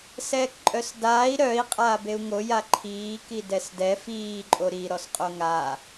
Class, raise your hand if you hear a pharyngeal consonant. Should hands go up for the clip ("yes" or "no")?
no